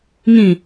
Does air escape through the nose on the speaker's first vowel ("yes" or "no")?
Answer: yes